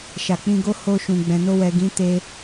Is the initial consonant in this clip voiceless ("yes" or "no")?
yes